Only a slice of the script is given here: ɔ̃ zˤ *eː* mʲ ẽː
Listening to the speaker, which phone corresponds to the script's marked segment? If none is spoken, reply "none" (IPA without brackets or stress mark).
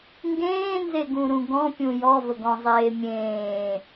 eː